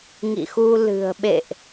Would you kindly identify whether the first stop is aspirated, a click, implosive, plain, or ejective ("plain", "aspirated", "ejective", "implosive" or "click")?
implosive